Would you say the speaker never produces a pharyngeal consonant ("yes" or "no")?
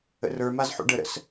no